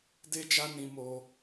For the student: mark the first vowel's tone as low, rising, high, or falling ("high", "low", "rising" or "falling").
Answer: high